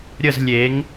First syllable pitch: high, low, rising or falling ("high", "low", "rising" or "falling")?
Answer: falling